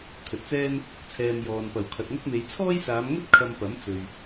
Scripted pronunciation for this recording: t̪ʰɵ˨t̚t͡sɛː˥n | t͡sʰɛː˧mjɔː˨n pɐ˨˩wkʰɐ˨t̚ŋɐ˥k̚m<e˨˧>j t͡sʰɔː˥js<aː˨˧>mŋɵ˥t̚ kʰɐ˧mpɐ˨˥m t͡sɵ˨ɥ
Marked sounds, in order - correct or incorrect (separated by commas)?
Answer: correct, correct